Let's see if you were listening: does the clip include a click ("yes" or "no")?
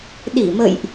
no